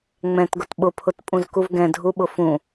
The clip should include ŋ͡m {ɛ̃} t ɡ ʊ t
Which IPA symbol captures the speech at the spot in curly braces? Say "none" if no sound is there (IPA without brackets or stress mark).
ɛ̃